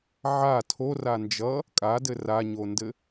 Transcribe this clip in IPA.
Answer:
ʕ a tʰ o r a n d͡ʒ ʌ | kʼ a d ɘ r a ɲ o n d ɘ

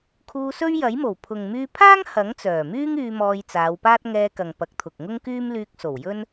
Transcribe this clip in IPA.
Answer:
kʰ uː˧ s ɵ˥ ɥ j ɐ˨˥ j m o˨˩ w pʰ ʊ˨ ŋ m yː˧ pʰ aː˥ ŋ h ɐ˨˥ ŋ t͡s œː˨˩ m yː˥ ŋ yː˧ m ɔː˧ j t͡s aː˨˧ w p aː˥ t̚ ŋ ɛː˧ k ɐ˨ ŋ p ɐ˨˥ k̚ t̪ʰ ʊ˨ k̚ ŋ ʊ˥ ŋ k yː˥ m l yː˧ k̚ s o˨˩ w j ɵ˥ n

